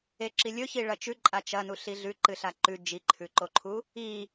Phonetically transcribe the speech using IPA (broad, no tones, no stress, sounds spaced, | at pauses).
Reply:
e ǁ i lʲ ɵ ç i ɭ ɐ t͡ʃ ʉ ǃʼ a t͡ʃ ɐ n u ɬ i ɮ ʉ ǃ ɨ ɬ a ǃ ʉ d͡ʒ i ǃʰ ʉ ǃ o ǃʰ u | i